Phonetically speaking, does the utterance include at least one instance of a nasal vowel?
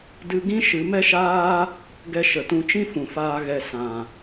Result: yes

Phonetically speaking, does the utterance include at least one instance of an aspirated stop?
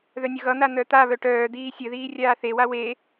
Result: no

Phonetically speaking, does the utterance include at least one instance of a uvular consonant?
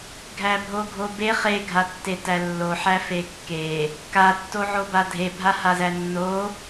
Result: yes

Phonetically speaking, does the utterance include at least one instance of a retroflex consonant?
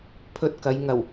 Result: no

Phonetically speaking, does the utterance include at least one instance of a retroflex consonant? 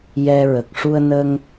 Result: yes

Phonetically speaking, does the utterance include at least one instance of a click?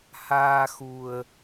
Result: no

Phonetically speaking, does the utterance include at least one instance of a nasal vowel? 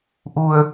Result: no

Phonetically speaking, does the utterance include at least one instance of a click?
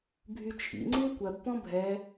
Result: yes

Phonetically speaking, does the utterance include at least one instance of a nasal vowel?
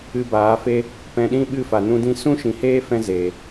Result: yes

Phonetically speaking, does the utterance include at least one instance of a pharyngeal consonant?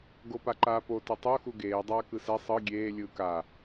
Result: no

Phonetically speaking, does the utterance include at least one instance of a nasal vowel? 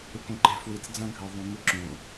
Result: yes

